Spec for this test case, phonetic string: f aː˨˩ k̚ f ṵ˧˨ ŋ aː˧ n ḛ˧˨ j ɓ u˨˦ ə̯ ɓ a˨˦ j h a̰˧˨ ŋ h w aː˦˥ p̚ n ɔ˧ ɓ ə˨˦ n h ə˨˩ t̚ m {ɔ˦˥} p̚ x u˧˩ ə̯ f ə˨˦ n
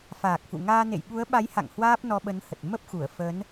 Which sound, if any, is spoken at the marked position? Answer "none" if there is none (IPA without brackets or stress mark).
ə˦˥